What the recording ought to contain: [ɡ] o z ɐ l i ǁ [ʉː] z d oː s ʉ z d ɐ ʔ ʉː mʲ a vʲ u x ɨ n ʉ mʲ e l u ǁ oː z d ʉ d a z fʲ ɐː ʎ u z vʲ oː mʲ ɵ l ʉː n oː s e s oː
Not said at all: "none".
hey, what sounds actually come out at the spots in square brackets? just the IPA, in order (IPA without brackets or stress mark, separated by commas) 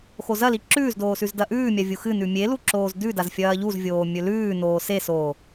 x, ʉː